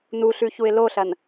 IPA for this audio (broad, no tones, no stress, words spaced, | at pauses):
nuɬʉ çuɪ̯loɬɐn